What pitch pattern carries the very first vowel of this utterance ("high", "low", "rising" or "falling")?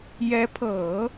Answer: rising